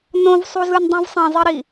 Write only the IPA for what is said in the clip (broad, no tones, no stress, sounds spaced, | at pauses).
n õ v sˤ u z ɯ n dˤ ũ v sˤ ẽ zˤ i ɾ i